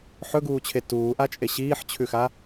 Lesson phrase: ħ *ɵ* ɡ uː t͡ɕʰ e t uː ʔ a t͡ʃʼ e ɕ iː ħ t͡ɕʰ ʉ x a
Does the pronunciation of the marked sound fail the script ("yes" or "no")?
no